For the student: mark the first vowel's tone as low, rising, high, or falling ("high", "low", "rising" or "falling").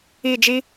falling